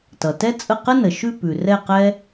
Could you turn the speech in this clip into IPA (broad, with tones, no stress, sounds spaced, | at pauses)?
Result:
t ʌ˩ t ɛ˥ t͡sʼ ə˥˨ q ə˥ n ə˩ ʃ ʉ˥˨ p ʉ˩ r ɛ˥˨ q ɛ˥